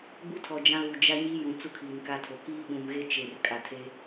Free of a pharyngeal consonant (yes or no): yes